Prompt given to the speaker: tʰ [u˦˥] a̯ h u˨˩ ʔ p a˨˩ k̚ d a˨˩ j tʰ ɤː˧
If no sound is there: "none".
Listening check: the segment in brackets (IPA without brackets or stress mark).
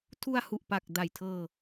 u˧